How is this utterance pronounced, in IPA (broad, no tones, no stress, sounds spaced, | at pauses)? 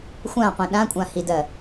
xʷ ã qʷ ĩ ɗ ã kʷʼ ã h i d ɜ